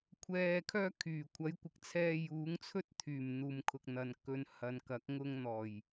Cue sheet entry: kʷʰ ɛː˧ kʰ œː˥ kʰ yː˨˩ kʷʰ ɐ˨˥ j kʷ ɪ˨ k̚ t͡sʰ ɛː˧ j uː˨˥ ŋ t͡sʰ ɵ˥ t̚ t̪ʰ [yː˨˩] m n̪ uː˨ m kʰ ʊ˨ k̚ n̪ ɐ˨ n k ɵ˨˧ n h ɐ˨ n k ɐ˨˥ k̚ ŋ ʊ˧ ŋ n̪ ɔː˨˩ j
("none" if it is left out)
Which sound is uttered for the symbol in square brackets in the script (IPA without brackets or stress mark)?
yː˨˩